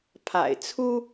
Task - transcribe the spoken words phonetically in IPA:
pʰ a̰˨˩ ɪ̯ t͡sʰ u˥

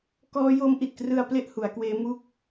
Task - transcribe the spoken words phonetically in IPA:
k ɔː˦˥ j o˦˥ m ʔ i˨˩ t̚ k r ɯ˧ a̯ p l e˥˩ ʔ h u˩˦ a̯ k w eː˦˥ m u˥˩ k̚

